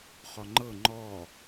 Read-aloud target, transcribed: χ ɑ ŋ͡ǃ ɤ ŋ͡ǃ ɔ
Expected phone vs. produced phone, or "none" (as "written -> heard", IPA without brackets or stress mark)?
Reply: ɑ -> ɔ